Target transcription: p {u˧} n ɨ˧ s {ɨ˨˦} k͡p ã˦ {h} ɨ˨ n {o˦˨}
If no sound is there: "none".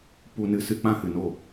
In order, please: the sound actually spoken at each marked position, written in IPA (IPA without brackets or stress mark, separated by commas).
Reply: u˧, ɨ˧, h, o˦˨